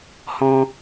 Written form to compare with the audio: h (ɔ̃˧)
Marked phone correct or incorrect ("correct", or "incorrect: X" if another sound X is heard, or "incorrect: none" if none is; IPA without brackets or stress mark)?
correct